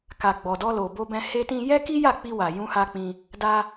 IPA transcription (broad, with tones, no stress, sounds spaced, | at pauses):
k a˨ ɡ͡b ɔ˨ d ɔ˧ l o˨ b o˧ b ɛ̃˧ h e˧ t ĩ˧ j ɛ˦ k i˦ j a˦˨ k͡p i˧ w a˨ j ũ˧ h a˧ k͡p ĩ˧ | d a˧